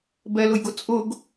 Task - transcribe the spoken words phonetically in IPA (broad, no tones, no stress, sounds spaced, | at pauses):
b ɛ l ʊ j ɡ ʊ t͡sʼ ʊ ɡ